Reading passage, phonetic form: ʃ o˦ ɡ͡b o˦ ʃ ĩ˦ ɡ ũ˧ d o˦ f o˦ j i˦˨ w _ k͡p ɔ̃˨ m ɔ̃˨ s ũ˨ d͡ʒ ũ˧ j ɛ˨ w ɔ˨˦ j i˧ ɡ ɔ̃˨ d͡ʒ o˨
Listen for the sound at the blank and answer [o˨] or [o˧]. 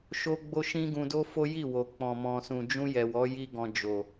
o˨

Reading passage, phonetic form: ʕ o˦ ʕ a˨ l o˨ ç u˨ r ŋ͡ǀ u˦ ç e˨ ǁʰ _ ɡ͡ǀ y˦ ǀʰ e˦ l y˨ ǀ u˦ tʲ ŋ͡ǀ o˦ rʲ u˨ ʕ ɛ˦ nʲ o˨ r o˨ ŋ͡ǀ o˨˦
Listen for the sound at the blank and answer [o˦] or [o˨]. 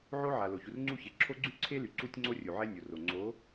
o˦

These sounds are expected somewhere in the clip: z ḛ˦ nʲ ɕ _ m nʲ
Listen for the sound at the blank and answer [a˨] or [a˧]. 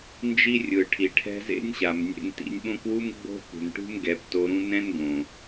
a˨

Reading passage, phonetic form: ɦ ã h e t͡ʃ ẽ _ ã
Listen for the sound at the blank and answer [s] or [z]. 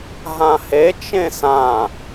s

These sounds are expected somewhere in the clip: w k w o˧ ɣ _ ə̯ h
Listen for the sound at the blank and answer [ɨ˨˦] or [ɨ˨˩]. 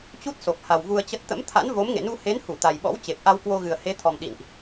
ɨ˨˩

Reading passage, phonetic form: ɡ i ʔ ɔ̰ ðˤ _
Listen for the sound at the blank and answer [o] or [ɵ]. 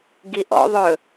ɵ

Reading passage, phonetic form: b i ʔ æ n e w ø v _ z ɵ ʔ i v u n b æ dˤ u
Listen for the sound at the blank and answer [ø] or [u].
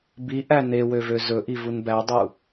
ø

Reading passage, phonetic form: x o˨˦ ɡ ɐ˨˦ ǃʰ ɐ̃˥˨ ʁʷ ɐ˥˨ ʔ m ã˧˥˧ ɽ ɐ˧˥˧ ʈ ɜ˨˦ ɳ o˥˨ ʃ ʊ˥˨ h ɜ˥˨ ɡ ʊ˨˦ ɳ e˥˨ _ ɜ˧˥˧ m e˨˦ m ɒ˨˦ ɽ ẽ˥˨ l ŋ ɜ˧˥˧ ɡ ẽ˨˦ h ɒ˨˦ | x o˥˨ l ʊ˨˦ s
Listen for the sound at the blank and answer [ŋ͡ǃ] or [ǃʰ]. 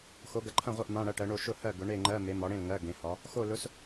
ŋ͡ǃ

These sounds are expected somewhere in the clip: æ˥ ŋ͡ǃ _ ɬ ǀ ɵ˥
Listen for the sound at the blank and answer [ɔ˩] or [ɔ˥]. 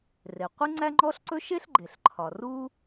ɔ˥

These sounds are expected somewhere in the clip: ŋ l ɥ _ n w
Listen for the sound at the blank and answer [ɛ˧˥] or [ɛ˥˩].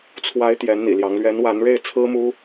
ɛ˧˥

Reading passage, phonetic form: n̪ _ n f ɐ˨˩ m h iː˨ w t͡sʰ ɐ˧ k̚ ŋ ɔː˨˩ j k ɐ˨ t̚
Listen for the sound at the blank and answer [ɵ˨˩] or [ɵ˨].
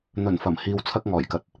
ɵ˨˩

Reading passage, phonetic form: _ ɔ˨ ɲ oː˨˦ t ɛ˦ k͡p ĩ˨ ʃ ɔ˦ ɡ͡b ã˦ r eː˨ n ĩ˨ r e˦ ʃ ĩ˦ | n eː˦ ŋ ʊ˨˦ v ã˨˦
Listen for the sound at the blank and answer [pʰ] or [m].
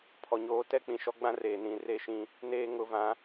pʰ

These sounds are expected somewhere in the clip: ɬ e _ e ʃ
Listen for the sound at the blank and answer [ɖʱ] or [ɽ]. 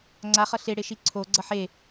ɽ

